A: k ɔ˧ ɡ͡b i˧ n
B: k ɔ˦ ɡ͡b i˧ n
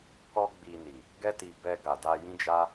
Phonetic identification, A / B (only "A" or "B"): B